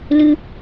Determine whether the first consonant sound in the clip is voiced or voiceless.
voiced